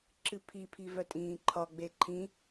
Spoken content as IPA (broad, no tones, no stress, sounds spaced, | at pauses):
ǁ ɨ pʰ i pʰ i v œ tʼ ĩː ǃʰ ɒ ɡ͡b e ǃʰ ĩ